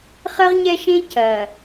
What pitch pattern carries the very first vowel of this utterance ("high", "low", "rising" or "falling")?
high